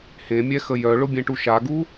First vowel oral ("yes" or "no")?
no